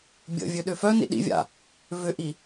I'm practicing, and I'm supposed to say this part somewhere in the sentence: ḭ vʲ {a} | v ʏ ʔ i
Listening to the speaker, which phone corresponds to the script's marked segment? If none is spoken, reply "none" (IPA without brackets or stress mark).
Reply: a̰